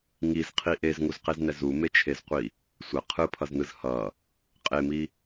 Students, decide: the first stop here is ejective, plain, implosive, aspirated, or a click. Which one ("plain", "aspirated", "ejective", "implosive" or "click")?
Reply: aspirated